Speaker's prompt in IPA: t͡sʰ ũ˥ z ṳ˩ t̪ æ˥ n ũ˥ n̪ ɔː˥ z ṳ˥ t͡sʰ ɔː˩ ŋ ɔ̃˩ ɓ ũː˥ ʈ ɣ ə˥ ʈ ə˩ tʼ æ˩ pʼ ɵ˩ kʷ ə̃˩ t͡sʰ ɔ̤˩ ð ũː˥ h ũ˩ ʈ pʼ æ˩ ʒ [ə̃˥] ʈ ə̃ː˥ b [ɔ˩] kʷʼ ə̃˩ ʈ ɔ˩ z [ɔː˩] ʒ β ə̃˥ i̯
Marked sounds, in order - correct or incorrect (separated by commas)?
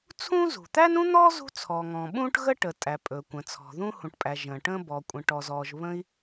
incorrect, correct, correct